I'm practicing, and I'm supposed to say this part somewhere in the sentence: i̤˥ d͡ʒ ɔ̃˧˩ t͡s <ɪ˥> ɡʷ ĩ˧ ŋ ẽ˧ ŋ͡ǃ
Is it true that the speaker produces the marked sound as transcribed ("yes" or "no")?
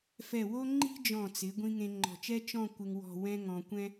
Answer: no